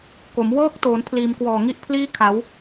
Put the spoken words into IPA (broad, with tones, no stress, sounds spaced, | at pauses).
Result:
k o˩˦ m w ɤː˦˥ k̚ t oː˩˦ n pʰ l iː˩˦ m k w ɔː˨˩ ŋ i˥˩ ʔ pʰ l iː˥˩ kʰ a˩˦ w